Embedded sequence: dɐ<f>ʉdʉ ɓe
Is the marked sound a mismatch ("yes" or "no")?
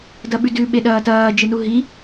yes